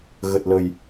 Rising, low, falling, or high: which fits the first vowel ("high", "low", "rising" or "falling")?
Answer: low